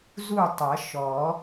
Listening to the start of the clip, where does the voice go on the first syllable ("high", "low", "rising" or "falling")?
falling